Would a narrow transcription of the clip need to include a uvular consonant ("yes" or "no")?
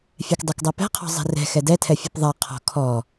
yes